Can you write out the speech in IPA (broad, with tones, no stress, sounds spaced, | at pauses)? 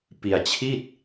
p i˧ a̯ t͡ɕʰ i˥˩ t̚